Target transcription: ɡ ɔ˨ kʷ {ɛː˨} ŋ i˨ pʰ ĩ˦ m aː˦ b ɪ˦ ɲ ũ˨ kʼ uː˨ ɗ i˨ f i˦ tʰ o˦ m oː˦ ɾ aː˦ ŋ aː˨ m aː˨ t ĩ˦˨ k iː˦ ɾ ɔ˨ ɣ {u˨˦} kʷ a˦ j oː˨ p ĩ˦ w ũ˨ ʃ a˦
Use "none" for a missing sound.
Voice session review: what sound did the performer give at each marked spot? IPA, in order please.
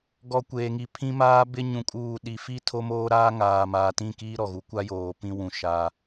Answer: eː˨, u˨˦

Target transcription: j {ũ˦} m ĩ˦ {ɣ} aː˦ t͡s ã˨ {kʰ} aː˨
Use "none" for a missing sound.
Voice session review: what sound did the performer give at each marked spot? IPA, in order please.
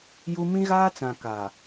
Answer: u˦, ɣ, k

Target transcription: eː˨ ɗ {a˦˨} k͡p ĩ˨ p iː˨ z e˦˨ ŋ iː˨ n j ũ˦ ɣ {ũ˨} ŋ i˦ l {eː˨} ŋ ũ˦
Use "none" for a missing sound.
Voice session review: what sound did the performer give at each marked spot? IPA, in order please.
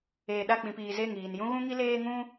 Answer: a˦˨, ũ˦, eː˦

